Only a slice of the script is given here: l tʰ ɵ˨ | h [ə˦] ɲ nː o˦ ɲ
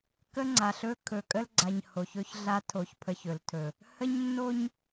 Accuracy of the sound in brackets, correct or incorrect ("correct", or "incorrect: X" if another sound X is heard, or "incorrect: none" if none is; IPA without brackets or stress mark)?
correct